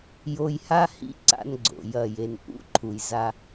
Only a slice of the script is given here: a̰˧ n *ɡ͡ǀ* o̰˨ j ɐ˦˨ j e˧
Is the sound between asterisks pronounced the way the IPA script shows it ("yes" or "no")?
yes